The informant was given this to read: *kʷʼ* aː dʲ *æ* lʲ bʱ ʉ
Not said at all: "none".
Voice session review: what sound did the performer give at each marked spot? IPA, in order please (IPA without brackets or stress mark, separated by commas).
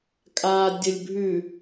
kʼ, ə